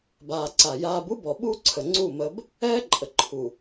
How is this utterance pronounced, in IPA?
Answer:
baː˨ ǀa˨ jaː˦b u˦bɔ˨ ɓu˦ǀʰə˨ ŋ͡ǀu˦˨ mə˦b | ɛː˦ǃʼə˨ǃʰu˨

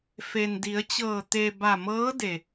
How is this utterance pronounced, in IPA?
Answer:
fe˩ndi˩˧ə̯t͡ɕɤː˧˩ t̪e˩ ba˧˩mɤː˧˥ de˩

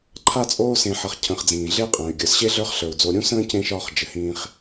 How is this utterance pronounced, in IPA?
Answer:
ǃʰa˦t͡sʼoː˦sẽ˨ħʌ˨χ cʰə̃˨χd͡zĩː˩ɮe˦qʼə̃ː˩y̯ ɡʲə˞˩sɕe˥ ɮə˞˦χɬə˞˩u̯d͡zo˨ ɾʲũ˥sə̃ː˥ cẽ˥ʃɒː˦χ d͡ʒɘ˩hĩː˦χ

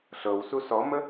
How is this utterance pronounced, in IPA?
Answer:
ɬɤwsu sɔmə

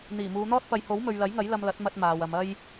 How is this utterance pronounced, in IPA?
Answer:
n̪iː˨˩muː˨˧n̪ɔː˥t̚ pɐ˨˧jho˨˥w mɵ˨ɥlɐ˨˥jŋɐ˨˥j lɐ˧mlɐ˨˥t̚mɐ˧t̚ maː˨wɐ˨˧m ɐ˥j

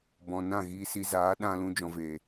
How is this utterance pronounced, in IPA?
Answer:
bɔ̃˨nã˦˨ ɣiː˧si˧ zaː˨˦ ɗã˧lũ˧d͡ʒɔ̃˨veː˨

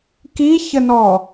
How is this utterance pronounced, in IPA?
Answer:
kiçənɔ

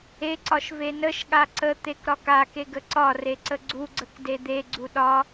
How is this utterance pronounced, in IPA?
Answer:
eǀɒʃ venəʃɠa ǀət̪ek ɾɒkake ɡəǀɒre ǀəɡ͡ǀuɡ͡ǀək ded̪eɡ͡ǀu ɗɒ

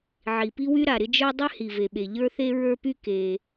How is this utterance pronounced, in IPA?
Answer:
ʕi˩pi˥wy˥ɾa˩ ɾɪ˥d͡ʒə˞˥ dˤy˥ hi˩ve˩ɓe˩ ʎə˞˥θe˥ ɹə˞˥py˥ ke˩

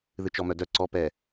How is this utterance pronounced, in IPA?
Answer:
ðɨt͡ʃɔmœdœ ǀɔpɛ

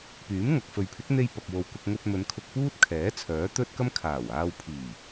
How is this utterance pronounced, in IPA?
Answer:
pyː˨˥mŋɐ˨k̚fɵ˨ɥpʰɪ˨˥k̚ n̪e˧j pɐ˨k̚wo˨w kʊ˧k̚ŋɵ˧t̚mɵ˨˧n kʰʊ˧k̚puː˥t̚kʰɛː˨˥ t͡sʰœː˨˥t̪ɵ˥t̚kɐ˥m kʰaː˨˩w aː˧wpʰiː˨˩

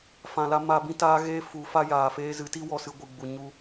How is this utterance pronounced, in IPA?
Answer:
fã˨la˧ ma˧bĩ˦taː˦ ɣeː˦fu˨˦fa˦ jaː˨feː˧ zɨ˨˦ti˦ wɔ˦˨sɨ˧ ɡʷɨ˨ɡ͡bu˨ ɲu˧

